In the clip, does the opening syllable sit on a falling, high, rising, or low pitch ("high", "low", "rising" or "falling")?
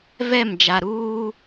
falling